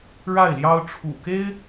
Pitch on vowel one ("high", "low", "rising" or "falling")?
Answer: falling